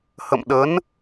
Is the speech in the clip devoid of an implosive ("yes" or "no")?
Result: no